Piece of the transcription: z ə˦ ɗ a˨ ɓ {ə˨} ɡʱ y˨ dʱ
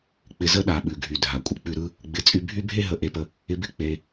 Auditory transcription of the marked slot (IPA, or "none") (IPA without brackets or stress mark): ʉ˨